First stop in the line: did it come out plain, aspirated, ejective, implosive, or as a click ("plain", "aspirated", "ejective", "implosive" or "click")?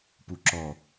plain